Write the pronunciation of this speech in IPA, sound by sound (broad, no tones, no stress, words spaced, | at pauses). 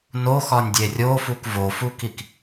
noxɒnʲdʲe rʲofuk vofukik